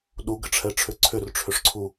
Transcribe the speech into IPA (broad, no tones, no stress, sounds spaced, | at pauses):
ɗ u ɡ ə ʈ͡ʂʰ ɛ ʈ͡ʂʰ ʏ ǀʰ ʏ r ʈ͡ʂʰ ʏ ʂ ǀʰ u